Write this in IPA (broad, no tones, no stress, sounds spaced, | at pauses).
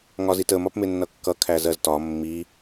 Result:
ŋ ɒ z i t ə m ɒ p m ɪ nː ʌ kː ʌ kʰ æ z ɜ z t ɒ mː i